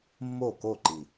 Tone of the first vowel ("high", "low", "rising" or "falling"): falling